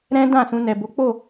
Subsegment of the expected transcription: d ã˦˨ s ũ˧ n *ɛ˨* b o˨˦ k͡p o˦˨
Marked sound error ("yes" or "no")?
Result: no